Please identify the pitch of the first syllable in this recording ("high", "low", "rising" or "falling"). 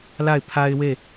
falling